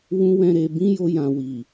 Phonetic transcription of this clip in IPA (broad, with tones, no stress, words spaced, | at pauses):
wũ˦ wɛ̃˦ɾe˧ bĩ˦jo˧jã˨ wi˨